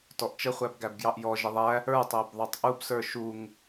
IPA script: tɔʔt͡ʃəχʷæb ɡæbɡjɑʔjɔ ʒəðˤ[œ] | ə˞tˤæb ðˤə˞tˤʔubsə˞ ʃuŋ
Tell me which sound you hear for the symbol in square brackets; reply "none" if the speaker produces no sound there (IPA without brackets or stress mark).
æ